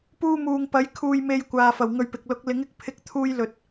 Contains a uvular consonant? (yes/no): no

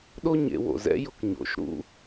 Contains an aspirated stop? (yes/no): no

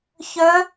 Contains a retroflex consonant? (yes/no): no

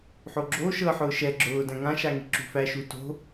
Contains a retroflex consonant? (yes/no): no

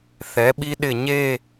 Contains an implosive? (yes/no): yes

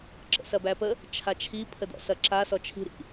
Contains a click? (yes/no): yes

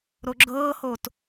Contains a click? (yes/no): yes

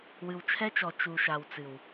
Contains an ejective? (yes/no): no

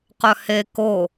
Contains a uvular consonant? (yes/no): yes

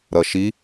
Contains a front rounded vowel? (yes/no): no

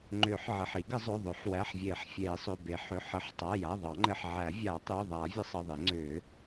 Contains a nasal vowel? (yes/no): no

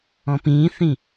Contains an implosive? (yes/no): no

